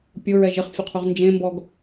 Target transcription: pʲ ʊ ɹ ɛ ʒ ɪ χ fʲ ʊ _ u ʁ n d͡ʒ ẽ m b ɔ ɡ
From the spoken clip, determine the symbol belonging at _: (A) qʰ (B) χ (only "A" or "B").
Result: A